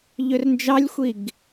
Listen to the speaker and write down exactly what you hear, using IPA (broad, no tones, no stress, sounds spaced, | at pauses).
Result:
ʎ ø r n d͡ʒ ɑ lʲ xʷ i ɡ